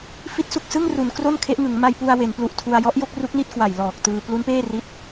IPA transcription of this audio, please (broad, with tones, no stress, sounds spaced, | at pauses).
f i˦˥ t̚ s u˨˩ k̚ s ɯ˥˩ ŋ r u˩˦ n k r o˥˩ n kʰ e˦˥ ʔ ŋ ɯ˩˦ ŋ m a˧ j p u˧ a̯ w e˩˦ n p l u˨˩ ʔ tʰ u˧ a̯ j ɔ˦˥ ʔ j o˥˩ k̚ r u˦˥ k̚ n i˥˩ t̚ k w a˨˩ j l ɔː˨˩ k̚ t ɯː˧ p l u˦˥ n p eː˥˩ r i˦˥ t̚